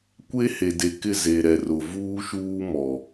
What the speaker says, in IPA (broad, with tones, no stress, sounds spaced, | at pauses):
kʷ e˦ h e˨ d e˨ k ɪ˦˨ z e˨ ɾ ɛ˨ r ʊ˨ v uː˦ ʃ uː˦ m ɔ˨